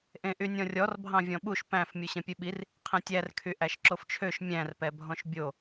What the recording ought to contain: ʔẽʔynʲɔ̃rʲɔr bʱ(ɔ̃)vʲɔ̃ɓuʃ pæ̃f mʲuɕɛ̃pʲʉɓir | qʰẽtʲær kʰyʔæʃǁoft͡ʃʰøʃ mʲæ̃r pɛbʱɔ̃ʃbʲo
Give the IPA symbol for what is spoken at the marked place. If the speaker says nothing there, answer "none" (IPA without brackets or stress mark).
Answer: ɑ̃